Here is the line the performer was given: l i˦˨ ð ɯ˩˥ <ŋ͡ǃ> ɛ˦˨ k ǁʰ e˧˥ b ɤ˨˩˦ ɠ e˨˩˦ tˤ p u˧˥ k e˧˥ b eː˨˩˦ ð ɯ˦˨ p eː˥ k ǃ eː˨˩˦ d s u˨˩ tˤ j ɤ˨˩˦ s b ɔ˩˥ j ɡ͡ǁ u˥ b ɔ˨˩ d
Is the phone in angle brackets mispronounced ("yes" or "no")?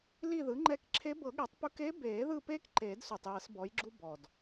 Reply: no